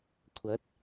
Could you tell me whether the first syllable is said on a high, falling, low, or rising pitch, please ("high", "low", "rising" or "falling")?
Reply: rising